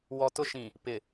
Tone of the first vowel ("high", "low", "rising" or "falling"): low